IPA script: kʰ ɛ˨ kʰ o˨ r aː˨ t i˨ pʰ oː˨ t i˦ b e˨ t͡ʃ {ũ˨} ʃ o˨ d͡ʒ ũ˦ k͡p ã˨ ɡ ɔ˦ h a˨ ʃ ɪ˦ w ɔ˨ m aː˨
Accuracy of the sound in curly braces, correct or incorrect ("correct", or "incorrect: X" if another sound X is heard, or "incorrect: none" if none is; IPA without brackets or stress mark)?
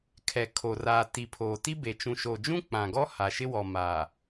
correct